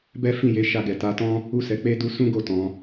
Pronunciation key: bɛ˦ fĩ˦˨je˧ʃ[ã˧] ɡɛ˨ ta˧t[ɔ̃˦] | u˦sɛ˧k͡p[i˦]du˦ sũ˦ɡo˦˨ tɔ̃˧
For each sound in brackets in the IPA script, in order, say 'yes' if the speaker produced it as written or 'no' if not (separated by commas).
no, yes, no